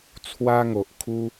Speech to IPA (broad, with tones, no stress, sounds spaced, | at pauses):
t͡sʰ w a˦ ŋ o˨ ʔ kʰ u˦